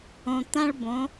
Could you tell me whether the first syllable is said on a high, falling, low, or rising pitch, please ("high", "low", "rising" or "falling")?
low